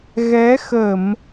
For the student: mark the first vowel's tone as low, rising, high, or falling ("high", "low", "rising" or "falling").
rising